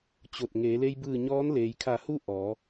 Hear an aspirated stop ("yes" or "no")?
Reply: yes